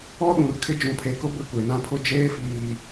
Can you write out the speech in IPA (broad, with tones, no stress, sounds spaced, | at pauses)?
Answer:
ɔ˦ ɗ ũ˨ r kʰ ɪ˦ d͡ʒ ũ˨ pʰ e˨ k ʊ˦ b ɪ˦˨ kʷ e˨ n ã˦ pʰ ʊ˦ d͡ʒ eː˦ f iː˨